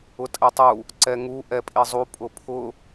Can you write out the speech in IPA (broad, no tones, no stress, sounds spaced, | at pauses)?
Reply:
ʊ tʼ ɛ tˤ u | ǀ ɛ ŋ u ʔ ɛ pʼ i zˤ u pʼ ʊ pʰ ʊ